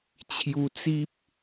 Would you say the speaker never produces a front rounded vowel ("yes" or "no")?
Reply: yes